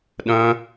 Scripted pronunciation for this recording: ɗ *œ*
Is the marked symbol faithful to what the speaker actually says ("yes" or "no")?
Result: no